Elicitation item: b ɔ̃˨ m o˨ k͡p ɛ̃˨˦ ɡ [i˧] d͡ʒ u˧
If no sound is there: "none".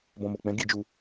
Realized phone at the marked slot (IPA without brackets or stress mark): i˧